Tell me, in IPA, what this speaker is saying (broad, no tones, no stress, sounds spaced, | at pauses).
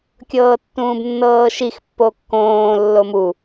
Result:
kʲ ɤː tː ũː b nː ɤː ʃ i x pː o kː õː lː o m u